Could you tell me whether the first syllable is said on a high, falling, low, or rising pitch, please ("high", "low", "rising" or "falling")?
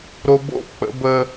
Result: low